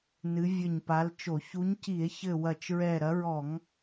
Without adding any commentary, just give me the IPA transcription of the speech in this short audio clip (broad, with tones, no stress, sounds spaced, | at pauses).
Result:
n ɨ˨˦ vʲ ɘ˧˩ ɲ p a˨˦ l t͡ʃ o˧˩˧ ç u˨˦ ɲ c i˧˩˧ e̯ ç ɘ˧˩ w ɐ˧˩ t͡ʃ ɹ ɛ˧˩ ɾ ɐ˨˦ ɹ ɔ˧˩˧ ŋ